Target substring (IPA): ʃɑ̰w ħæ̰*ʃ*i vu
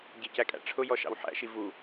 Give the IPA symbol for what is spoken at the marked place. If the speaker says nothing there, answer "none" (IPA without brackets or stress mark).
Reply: ʃ